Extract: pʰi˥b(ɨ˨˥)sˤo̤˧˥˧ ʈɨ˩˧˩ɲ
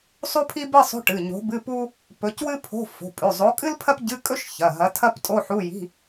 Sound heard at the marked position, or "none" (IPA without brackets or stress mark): ɨ˧˥˧